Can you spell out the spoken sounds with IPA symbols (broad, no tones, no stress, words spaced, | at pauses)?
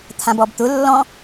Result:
t̪ʰãbɔbt̪ʊ lːɔ̃